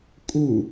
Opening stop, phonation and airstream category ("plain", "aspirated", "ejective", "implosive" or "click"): ejective